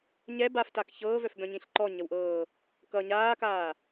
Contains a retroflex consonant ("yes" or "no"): no